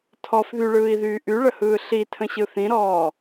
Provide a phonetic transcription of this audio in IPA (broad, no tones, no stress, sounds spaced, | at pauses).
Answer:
tʰ ɔ f ð y ɭ ɯː i̯ ð yː ʔ y ɭ ə h ɯː ɬ i tʰ ə̃ ɕ ɯ θ ĩ ɾ ɔː